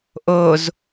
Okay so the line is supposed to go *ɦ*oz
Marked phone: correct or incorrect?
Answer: incorrect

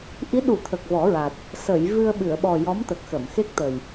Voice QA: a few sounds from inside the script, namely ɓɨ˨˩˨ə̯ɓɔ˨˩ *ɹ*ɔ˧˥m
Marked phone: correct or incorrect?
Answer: incorrect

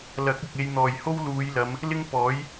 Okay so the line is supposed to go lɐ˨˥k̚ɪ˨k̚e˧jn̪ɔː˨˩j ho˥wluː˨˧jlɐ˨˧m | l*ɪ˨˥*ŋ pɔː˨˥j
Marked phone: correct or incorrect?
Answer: incorrect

